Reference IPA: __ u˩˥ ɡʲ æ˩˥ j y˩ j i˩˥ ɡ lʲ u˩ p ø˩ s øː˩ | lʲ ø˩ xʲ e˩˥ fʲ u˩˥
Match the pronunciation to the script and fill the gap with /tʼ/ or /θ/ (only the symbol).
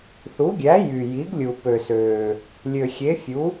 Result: θ